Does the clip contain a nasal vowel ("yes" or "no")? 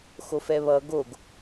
no